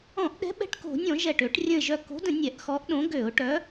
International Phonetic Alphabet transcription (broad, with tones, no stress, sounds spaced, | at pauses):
ɔ̃˧˩˧ ʔ ɗ ɛ̤˨˥ ɓ ɛ̤˧˩ ʈ k o̤˧˩˧ nʲ ɔ̃˧˩˧ ʒ ɛ˧˩ ʈ ø˧˩˧ ʈ rʲ ə̃˧˩ ɪ̯ ʒ œ˧˩ k o̤˨˥ d ə̃˧˩˧ nʲ ɛ˧˩˧ ʔ x ɔ˨˥ ʔ ɗ õ˨˥ ɡ ø˧˩˧ ʊ̯ ʈ œ˨˥